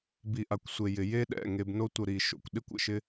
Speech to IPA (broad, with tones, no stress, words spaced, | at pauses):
bi˨ʔa˨kʷsʷe˨ jɪ˨ je˦ ɗɛ̰˦˨ŋe˧bno˦tʷə˧ ɾi˨ʃo̰˨kʷɗɪ˦kʷ ə̰˨ʃɪ˦